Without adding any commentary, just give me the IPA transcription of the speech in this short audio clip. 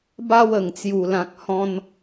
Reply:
b a˧ w ə˨˩ ŋ t͡s j u˨˩ l ã˨ k̚ h ɔ̃˧ n

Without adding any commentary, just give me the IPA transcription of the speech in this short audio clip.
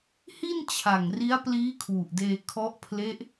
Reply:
h i˥˩ n t͡ɕʰ a˨˩ ŋ r i˦˥ a̯ p l iː˦˥ kʰ w u˨˩ ʔ d eː˧ kʰ ɔ˦˥ ʔ pʰ l e˦˥ ʔ

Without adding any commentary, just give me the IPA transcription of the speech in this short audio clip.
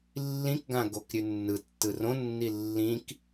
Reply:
lː ĩ k ɡ ã ɡ o k ɾʲ ʉ nː ɯ tː ɯ r õ nː i lː ĩ k

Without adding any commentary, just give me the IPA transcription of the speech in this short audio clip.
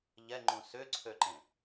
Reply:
ʎ ɛ ŋ͡ǃ ũ s ʏ ǀʰ ø ǃ ẽ

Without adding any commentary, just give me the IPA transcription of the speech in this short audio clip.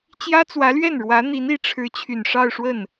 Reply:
t͡ɕ j ä˥ t͡s w ä˧˥ l ɥ ɛ˥˩ n ɻ w ä˧˥ n̪ i˧˥ n i˧˥ ʈ͡ʂʰ ɻ̩˧˥ t͡ɕʰ y˨˩ n ʂ ɑ˥˧ ʊ̯ ʂ w ə˥˩ n

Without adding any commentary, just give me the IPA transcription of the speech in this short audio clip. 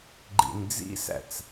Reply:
ɡ͡ǃ ḭ n d͡z ḭ s æ̰ t͡s

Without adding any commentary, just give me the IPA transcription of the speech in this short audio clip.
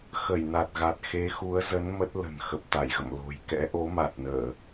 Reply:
x ə˧˩ j n a˨˩ t̚ ɣ a˨˩ t̚ x e˨˦ x u˨˦ ə̯ z ə˨˦ n m ə˦˥ t̚ l ə̤˨˩ n x ə˨˩ p̚ t̪ a˧˩ j ɣ ə̰˧˨ m l o̤˨˩ j k ɛ̰˧˥ ʔ o˨˦ m a˨˩ t̚ n əː˧˩˨

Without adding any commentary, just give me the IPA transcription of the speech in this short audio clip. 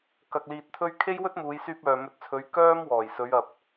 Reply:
k ɐ˧ k̚ l iː˧ t̚ t̪ʰ ɵ˥ ɥ kʰ e˥ j w ɵ˥ t̚ m uː˨˧ j s yː˧ p̚ œː˨ m ɵ˨˥ t̚ t͡sʰ ɵ˨˧ ɥ k œː˥ m w ɔː˨˩ j s ɵ˨˧ ɥ ɐ˨ p̚

